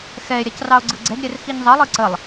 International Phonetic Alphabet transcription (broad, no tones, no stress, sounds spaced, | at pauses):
x ɛ e̯ ɾʲ a c r ɑ o̯ ɡ͡ǀ ɯ ɡ͡ǀ ɛ d ɾʲ ɛ r x i ɲ zˤ ʌ lˠ ɯ ǀ ə lˠ